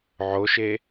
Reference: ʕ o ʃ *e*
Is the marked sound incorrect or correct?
correct